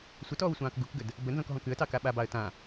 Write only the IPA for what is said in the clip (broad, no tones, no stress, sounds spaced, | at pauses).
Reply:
sʷ ə t ɔː w sʷ ɑ̃ː k ɡ u k ɡ ə d | b ə n z ɔ̃ k ɦ ɔ̃ k ʉ ə̯ t ɑ k a ɓ a b ɑ ə̯ t ã